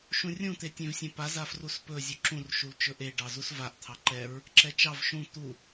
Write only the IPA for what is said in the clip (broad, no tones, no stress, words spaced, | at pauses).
ʃũrʲũ t̪etʲẽvsʲẽpa zafruspɵ zʲuǁũr ʃult͡ʃɵʔe ɖɑzusvaʔ t̪ʰɑǃɛɹ | ǁɛt͡ʃɑv ʃũ t̪u